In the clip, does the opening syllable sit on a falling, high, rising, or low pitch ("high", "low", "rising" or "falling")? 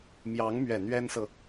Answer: rising